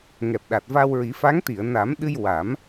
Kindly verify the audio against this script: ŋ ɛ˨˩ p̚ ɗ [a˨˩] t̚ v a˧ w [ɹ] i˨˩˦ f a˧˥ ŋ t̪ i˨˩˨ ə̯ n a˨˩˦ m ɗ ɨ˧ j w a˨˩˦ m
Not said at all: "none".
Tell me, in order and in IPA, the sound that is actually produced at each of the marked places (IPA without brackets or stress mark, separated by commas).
a˨˩, ɹ